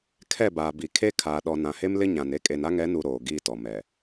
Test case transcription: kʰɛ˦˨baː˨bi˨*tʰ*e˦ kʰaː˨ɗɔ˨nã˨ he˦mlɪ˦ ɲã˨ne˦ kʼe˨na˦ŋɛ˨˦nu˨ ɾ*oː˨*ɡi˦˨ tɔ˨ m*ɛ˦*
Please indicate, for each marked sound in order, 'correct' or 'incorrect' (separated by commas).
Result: incorrect, correct, incorrect